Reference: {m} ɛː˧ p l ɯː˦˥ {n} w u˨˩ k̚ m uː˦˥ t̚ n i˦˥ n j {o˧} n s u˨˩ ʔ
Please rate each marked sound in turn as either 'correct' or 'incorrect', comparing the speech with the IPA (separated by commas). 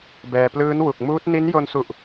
incorrect, correct, correct